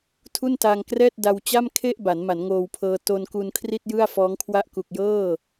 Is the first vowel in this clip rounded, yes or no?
yes